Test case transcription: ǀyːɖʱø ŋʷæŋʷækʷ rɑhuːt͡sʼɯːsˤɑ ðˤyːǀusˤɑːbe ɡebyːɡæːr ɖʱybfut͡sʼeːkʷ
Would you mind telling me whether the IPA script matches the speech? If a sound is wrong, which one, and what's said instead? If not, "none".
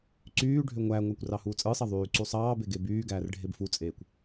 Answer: y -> e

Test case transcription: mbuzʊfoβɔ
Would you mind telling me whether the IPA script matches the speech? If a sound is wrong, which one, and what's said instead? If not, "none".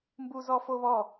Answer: ʊ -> ɔ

